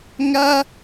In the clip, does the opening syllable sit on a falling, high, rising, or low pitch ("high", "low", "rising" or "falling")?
high